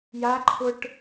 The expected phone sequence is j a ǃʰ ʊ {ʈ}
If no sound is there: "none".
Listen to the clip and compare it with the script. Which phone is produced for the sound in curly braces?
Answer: ʈ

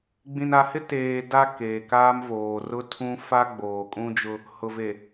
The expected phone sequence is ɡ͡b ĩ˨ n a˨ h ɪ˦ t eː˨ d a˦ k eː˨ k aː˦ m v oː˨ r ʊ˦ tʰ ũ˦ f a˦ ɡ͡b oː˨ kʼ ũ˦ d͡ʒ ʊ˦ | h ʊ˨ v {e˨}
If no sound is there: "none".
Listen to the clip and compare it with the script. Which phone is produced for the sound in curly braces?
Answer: e˨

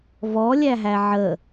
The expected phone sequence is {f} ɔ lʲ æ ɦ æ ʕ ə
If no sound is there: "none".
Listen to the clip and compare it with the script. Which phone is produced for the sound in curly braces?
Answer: v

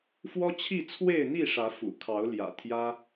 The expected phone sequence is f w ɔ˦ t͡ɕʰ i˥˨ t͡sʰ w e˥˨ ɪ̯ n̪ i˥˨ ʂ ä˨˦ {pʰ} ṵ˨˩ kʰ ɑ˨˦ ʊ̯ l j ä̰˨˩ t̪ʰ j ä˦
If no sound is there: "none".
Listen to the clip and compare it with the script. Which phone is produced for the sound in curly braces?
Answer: f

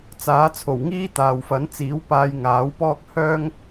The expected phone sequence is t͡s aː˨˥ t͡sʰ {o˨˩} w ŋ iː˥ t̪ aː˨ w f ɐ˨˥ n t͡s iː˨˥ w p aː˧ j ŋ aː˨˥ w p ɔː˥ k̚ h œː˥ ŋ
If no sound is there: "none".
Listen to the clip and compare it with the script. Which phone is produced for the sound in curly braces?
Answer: o˨˩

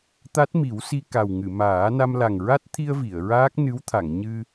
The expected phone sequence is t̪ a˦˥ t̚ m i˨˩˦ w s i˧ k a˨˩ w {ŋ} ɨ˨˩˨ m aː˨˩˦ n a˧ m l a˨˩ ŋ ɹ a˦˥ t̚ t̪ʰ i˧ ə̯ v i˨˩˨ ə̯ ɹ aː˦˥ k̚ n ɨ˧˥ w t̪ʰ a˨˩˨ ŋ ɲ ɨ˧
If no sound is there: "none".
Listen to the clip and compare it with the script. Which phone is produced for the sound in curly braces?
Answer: ŋ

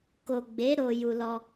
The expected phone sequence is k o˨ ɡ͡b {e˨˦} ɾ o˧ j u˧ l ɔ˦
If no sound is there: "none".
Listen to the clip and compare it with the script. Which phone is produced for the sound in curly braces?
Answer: e˨˦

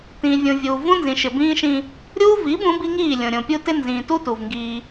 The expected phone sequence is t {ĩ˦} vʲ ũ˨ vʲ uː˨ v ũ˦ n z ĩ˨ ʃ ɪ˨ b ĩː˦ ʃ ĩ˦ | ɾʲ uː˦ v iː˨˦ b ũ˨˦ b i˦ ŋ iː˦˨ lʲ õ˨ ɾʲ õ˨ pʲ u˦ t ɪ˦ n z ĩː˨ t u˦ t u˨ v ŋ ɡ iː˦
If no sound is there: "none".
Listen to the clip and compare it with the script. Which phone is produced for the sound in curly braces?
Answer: ĩ˨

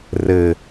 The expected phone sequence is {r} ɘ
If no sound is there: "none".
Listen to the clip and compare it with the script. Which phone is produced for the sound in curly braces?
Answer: r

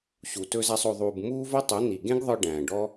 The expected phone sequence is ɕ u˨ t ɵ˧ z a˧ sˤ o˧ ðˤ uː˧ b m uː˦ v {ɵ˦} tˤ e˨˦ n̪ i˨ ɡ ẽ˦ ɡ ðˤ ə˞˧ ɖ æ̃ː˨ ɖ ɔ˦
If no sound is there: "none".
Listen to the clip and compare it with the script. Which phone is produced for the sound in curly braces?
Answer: ɵ˦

